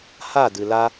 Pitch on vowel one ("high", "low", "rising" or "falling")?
falling